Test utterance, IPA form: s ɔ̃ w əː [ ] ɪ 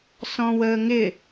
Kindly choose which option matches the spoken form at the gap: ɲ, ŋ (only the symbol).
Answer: ŋ